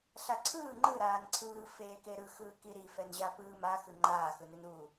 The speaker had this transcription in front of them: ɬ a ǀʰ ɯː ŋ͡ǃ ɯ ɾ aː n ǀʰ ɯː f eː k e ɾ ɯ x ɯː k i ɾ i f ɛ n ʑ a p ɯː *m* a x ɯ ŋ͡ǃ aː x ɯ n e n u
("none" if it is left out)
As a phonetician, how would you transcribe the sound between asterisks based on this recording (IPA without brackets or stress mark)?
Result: m